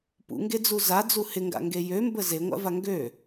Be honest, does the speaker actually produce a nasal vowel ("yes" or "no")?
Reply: no